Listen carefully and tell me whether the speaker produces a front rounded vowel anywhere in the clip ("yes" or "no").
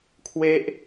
no